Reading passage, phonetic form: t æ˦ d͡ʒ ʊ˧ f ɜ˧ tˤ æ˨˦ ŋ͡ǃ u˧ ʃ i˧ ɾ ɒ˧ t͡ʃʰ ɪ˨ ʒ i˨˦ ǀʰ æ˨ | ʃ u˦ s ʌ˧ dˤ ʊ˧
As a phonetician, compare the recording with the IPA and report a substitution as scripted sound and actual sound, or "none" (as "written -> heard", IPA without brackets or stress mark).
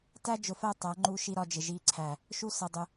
t͡ʃʰ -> d͡ʒ